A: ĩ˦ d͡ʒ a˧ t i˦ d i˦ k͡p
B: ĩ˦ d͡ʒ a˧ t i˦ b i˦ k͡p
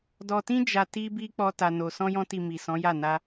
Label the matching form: B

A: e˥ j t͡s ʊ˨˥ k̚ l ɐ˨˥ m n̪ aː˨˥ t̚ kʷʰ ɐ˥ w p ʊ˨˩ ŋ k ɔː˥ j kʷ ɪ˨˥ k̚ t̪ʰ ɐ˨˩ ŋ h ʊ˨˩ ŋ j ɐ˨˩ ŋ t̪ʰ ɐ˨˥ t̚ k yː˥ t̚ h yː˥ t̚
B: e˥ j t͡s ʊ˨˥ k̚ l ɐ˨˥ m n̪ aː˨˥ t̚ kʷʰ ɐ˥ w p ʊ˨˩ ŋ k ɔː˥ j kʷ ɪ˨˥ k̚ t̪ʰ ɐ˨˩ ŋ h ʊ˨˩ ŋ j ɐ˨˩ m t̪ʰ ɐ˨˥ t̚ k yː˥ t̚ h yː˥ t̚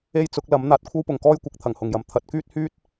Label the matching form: B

